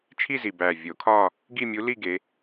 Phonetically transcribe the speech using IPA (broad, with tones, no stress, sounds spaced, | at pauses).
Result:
t͡ʃʰ i˥˧ z i˨˩ b æ˨˩ vʲ o˨˩˦ kʰ ɒ˥˧ | ɡ i˥˧ mʲ u˧˥ l i˥˧ ɡ e˧˥